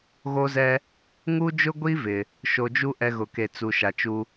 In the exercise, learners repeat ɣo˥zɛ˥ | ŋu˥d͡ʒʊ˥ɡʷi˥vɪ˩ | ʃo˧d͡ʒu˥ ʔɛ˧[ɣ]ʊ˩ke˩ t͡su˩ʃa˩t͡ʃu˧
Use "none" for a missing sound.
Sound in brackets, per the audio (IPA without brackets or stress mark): ɣ